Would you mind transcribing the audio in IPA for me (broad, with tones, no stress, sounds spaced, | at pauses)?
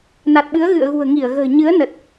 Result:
n a˨˩ t̚ ɓ ɨ˨˦ ə̯ ɣ ɨ̰˧˨ ə̯ ɣ ṳ˨˩ ə̯ ŋ i˧˩ ə̯ ɣ ə̤ː˨˩ ɲ ɨ˨˦ ə̯ n ə˨˩ t̚